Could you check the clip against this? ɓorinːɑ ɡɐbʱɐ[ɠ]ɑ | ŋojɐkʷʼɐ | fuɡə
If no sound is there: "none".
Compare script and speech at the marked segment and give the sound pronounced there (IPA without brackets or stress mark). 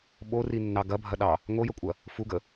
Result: ɗ